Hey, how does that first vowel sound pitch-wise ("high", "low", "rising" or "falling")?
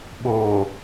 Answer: low